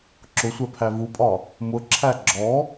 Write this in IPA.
ǁʊsʷɛ pʰævupʼɒ | mʊǁʰæ ɡ͡ǁɔ

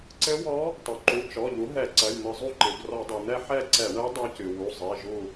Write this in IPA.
ǀɘ˧˥wɔ˧˥ | tˤu˩ǃu˩˧˩ t͡ʃɔ˩˧˩ʎu˩˥ ɦɛ˧˩˧ǀɐ˩˧˩j n̪ɘ˧˩˧zˤu˦˨ǃɨ˩b rɔ˧˩˧dˤe˩n̪ɛ˦˨ ħɛ˦˨ǀɛ˧˩˧ɳɛ˧˥ dˤu˧˥cɨ˩ wu˩˧˩zˤe˩˧˩ ʒu˦˨

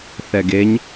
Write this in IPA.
θɛɡeɲ

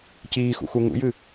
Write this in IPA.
ciːxṵxu ŋṵjɨ

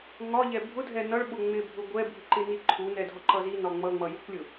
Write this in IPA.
ŋɒʎɛ bʱʊdʱɛ nʌɭɓʊ ŋ͡mɪbʱʊ ɡʷɛbʱiǃɪni ǃʰunɛdʱɒǃʌ zinɒ ŋ͡mʌŋ͡mʌjukʷlʲʊ

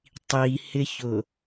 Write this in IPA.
tˤihɪçʊ

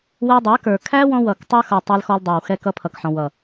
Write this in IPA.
wɛ˧dˤæ˨˦kə˞˨ kʰæ˦wɔ̃˧wʌ˨k tˤə˞˧xʌ˨ tˤɛ˧lxɔ˧l dˤə˞˨wxɛ˧ kʌ˧pʰʌ˨kħɔ̃˨ wʌ˨

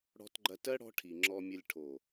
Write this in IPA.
ɽɔ̤˧tɡ͡ǃɐ˧tɜ˦ ɽɔ̤˧ ʈʰi˨ŋ͡ǁɔ˧mʲɐ˧lʲ ʈʰo˨

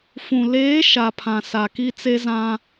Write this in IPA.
fũ˨ leː˨˦ ʃa˨pʰã˨ sa˨ki˦ t͡se˦zã˦

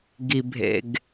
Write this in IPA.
ɡi˨bʱḛ˨ɡ

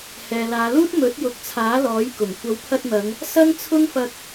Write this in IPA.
hɛː˨laː˨˧luː˥t̚ mɵ˨˥t̚jʊ˨˥k̚ t͡sʰaː˨˥lɔː˨˥jkʊ˨˩ŋ kʷɐ˨˥wpʰɐ˧t̚n̪ɐ˨˧ŋ | sɐ˥ŋt͡sʰʊ˥ŋfɐ˧k̚

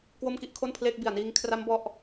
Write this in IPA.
kwo˥˩mki˥˩ʔkʰo˥˩npʰleː˥˩k̚ bi˨˩a̯niː˧ŋkʰra˦˥m bɔ˦˥ʔ

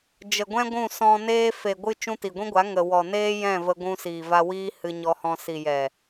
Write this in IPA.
d͡ʒə˨ɡʷɛ̃˦ɡʷũ˦˨sɔ̃˧ neː˧fe˨ɡʷɨ˧ t͡ʃũ˧ti˨ɡʷĩ˦ɡʷa˨˦ ŋə˨wɔ˨neː˦jɛ̃˦˨ və˧ɡʷũ˧ siː˨va˧wiː˦ hɨ˧ɲɔ˧hɔ̃˧ si˨jɛ˨

